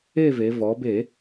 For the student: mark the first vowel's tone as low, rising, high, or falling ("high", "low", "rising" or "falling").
falling